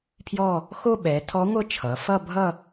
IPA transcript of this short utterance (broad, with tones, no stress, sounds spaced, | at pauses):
pʰ j ɔ˥˧ | x o˥˧ ɓ ɛ˩˧ tʰ ɔ˧˥ ŋʷ ɤ˥˧ t͡ʃʰ ʌ˩˧ f ʌ˥˧ bʱ ʌ˥˧